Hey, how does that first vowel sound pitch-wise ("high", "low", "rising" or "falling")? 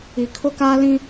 low